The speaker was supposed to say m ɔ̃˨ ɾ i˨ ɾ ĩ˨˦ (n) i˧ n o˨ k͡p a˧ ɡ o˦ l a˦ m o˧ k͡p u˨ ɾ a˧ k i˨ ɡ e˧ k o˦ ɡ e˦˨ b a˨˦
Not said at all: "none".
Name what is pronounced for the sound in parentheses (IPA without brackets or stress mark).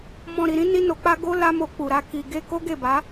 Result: n